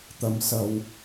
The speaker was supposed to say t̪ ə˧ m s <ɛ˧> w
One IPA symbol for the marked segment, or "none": ə˧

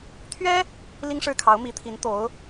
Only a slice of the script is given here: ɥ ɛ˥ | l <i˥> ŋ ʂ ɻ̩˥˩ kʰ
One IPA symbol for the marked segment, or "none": i˥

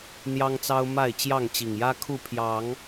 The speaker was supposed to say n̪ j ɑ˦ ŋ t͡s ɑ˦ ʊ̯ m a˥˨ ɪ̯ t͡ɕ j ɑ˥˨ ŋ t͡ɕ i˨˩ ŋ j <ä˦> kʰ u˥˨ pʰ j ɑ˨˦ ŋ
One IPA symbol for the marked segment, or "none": ä˦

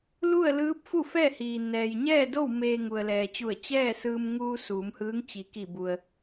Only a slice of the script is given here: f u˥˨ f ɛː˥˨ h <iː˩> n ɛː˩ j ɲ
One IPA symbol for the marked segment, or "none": iː˩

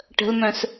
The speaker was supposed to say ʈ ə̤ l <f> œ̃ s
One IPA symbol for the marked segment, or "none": m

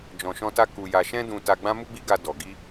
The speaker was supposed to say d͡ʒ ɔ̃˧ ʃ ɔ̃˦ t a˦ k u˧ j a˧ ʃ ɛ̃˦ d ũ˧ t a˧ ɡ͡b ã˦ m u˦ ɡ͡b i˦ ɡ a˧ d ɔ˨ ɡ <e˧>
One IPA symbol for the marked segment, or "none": i˧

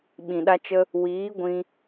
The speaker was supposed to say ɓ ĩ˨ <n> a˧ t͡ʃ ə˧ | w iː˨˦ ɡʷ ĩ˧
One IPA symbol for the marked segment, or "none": ɗ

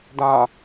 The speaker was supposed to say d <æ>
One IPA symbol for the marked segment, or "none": a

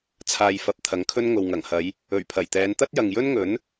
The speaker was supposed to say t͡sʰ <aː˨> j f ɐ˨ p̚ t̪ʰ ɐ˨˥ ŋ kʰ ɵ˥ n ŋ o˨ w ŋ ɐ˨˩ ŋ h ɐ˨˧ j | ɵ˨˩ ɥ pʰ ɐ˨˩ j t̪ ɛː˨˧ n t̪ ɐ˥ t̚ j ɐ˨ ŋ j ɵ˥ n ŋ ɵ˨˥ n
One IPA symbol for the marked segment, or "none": aː˨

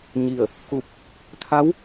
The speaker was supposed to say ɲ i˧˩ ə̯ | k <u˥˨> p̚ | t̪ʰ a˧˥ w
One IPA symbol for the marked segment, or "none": u˧˩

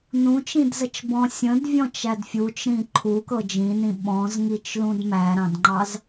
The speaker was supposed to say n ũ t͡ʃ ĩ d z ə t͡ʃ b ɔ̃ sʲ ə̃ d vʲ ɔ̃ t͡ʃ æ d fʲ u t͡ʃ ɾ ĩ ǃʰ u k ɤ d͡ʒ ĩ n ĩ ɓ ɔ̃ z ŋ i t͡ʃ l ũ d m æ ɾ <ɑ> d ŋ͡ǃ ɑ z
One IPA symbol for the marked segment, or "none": ɑ̃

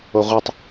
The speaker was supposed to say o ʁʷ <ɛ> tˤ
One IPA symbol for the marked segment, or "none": ɪ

